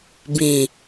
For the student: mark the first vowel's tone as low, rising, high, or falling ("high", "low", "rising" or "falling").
low